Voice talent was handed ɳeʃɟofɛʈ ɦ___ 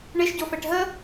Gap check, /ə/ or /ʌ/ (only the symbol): ə